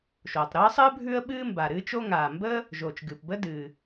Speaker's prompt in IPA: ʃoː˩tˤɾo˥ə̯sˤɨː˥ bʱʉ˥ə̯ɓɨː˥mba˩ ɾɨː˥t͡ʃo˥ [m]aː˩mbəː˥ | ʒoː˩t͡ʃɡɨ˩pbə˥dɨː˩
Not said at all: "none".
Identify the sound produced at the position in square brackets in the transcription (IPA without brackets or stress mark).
ŋ